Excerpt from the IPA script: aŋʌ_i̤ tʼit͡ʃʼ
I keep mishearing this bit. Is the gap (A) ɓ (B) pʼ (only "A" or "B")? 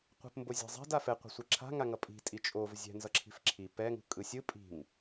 B